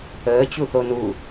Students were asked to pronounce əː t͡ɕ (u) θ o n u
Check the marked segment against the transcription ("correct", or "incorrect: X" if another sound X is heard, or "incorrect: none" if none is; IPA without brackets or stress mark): correct